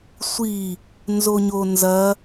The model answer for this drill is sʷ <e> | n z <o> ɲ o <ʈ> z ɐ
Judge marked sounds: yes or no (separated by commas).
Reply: no, yes, no